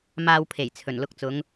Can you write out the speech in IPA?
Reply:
maː˧wpʰe˨˩jt͡sʰɵ˨˩n lʊ˧k̚t͡sʊ˨˧ŋ

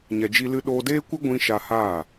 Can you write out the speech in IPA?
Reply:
ɲɛ˧d͡ʒi˦lɨ˦ ɗoː˧deː˦kʷɨ˦ ɡʷĩ˦ ʃa˧haː˦˨

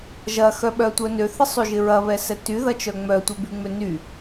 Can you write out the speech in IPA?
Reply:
ʒɐxœɓœtʷœ nøθɪsˤyʒɪ ɹɐβɛsɛ tyðɐt͡ʃœ ŋ͡mœtʷœbyŋ͡mø ny

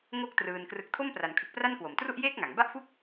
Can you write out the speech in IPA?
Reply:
ŋo˥˩k̚ trɯː˧nkrɯ˦˥k̚ tʰo˥˩mpra˩˦nkʰɯ˨˩k̚pra˥˩n kwo˨˩mtru˥˩ʔjeː˥˩k̚ŋa˩˦ŋ ba˥˩ʔfu˥˩k̚

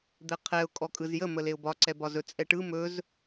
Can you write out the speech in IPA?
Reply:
d̪ɛqʰɛʊ̯ kʼɔkʼɯzjə məleʊ̯bɒ ǀɛbɒzɵ t͡sʼɛʈɯ mɵz

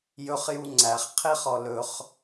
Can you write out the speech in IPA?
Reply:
jɵχju ŋ͡ǀæχqʰeχɔ lɵχ

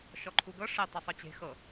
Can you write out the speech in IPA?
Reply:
ʃɔǃʰuɡɤ ʂe tˤɛsˤɤt͡ɕe̤ xɤ

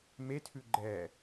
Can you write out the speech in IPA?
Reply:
metʰʉ ɡ͡ǃɛ

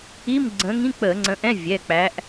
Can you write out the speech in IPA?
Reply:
i˧˥˧mɡ͡ǀə̃˨˦ŋĩ˧˥˧ k͡pə˧˩˧ŋ͡ǀə̃˨˦ʔɛ̃˧˥˧ vʲɛ˩˧˩k͡pæ˨˦ʔ

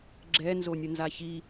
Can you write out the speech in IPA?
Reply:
ɡ͡ǁɛ nzonʲənzaçi

